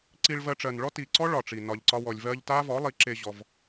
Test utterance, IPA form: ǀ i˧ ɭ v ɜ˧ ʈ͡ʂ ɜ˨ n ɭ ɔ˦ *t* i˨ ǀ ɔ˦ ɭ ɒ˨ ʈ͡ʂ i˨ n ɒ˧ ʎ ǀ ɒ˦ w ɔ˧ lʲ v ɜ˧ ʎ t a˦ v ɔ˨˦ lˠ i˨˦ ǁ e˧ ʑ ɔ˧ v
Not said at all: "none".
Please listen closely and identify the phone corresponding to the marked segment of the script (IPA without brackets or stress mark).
t